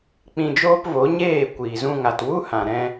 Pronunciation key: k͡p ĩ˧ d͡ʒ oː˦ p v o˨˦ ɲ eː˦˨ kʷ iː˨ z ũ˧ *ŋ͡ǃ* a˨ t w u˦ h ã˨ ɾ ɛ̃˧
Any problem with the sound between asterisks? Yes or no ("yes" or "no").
yes